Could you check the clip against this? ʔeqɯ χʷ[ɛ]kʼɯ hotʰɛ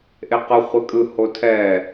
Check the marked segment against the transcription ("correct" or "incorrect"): correct